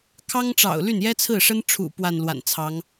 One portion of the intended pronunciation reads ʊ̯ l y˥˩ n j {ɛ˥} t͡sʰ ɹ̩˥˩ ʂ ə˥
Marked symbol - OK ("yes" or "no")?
yes